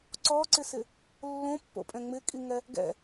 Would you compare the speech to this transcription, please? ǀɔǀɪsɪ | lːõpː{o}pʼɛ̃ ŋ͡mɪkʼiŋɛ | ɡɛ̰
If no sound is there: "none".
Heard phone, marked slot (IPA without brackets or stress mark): o̰